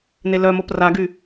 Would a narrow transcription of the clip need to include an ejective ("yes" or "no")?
no